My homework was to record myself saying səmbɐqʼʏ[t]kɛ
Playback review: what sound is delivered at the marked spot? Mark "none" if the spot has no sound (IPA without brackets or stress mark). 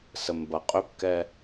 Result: p